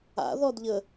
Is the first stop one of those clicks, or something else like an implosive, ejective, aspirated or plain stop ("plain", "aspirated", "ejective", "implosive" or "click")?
plain